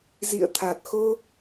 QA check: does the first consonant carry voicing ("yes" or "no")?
yes